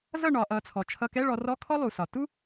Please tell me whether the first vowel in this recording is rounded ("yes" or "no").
no